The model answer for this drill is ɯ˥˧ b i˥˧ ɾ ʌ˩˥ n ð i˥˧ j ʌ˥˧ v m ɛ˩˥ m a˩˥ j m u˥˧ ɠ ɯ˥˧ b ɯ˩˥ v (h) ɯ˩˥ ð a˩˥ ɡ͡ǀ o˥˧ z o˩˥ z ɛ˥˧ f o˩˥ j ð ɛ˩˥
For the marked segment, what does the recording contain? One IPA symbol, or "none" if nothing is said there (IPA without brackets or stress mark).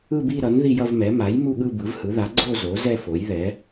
h